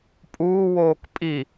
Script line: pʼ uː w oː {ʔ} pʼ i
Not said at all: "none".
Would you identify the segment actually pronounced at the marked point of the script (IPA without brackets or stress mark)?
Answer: k